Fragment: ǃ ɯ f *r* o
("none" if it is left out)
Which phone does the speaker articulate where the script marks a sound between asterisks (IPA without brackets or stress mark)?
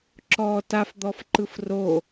r